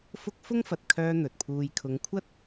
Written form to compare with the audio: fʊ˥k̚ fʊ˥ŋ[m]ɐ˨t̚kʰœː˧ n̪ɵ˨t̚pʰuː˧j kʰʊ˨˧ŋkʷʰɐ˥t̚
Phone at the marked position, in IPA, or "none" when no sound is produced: f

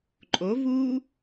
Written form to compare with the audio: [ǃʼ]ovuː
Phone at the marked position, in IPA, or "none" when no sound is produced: ǃʼ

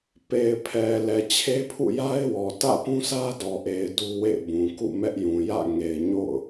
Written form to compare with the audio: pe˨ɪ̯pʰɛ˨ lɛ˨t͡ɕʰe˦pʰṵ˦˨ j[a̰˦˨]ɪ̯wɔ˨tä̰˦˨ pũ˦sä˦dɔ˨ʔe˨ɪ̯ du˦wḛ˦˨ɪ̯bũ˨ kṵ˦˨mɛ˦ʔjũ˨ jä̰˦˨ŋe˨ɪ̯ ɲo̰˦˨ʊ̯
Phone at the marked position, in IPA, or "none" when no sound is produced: a˦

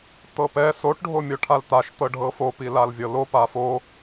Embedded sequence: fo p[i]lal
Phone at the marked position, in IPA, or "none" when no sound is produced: i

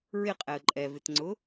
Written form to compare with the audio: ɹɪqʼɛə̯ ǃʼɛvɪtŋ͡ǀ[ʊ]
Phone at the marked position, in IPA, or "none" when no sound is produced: ʊ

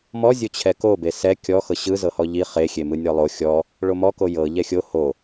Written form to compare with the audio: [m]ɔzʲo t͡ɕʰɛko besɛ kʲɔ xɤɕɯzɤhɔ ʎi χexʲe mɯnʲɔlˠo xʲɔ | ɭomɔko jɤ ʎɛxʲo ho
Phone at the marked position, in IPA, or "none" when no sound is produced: m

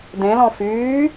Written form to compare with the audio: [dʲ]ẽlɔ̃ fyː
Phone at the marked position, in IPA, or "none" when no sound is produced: d̪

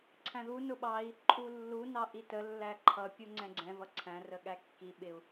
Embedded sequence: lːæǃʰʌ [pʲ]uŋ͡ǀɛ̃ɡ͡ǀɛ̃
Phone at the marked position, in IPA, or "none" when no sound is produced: pʲ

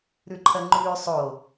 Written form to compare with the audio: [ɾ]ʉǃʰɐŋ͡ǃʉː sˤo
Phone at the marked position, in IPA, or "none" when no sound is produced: ɾ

